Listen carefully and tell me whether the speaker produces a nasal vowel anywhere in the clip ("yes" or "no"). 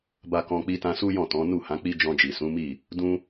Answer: yes